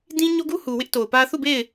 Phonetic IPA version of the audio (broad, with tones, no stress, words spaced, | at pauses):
dĩ˦ɲo˦ɡu˦hu˨ wɪ˦ʔto˨ʊ̯ pä˦ θu˦˨be˦˨ɪ̯